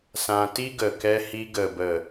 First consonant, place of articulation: alveolar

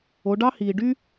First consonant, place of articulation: retroflex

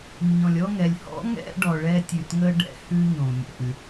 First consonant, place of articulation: palatal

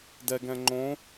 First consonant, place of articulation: alveolar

